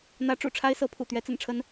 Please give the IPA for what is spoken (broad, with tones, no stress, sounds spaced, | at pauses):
n̪ ä˧˥ ʈ͡ʂ ṵ˨˩ ʈ͡ʂʰ a˥ ɪ̯ s ɤ˧˥ pʰ ṵ˨˩ t̪ ɥ ɛ˧˥ t͡s ə̰˨˩ n ʈ͡ʂʰ ə˧˥ n